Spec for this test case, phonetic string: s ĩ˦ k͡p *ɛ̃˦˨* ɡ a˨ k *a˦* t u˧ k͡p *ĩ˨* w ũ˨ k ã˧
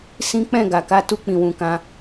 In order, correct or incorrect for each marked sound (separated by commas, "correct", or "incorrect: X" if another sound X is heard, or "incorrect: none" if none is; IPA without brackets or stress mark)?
correct, incorrect: a˨˦, correct